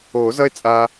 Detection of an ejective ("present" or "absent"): present